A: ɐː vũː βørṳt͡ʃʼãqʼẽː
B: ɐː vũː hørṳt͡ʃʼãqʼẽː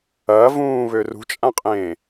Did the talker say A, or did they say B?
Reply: A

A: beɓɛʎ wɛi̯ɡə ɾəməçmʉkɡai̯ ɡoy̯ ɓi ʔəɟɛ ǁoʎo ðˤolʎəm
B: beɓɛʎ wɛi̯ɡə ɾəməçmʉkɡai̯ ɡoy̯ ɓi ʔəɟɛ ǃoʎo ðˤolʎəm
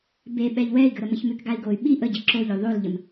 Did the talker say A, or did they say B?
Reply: A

